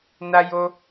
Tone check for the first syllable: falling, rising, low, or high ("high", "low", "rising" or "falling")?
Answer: high